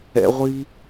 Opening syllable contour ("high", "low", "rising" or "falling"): high